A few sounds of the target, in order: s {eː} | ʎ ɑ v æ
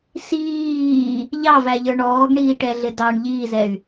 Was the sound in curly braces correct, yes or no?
no